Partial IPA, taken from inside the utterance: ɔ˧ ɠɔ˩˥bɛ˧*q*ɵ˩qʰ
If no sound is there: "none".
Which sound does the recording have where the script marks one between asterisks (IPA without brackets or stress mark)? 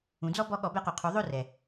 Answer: q